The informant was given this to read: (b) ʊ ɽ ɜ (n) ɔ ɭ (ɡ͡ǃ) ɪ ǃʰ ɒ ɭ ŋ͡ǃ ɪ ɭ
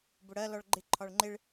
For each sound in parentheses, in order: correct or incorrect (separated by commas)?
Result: correct, incorrect, correct